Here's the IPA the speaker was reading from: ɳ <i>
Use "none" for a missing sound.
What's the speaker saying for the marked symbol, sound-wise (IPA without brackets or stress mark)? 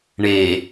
e